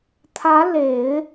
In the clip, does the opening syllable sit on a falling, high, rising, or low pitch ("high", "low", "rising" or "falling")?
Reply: rising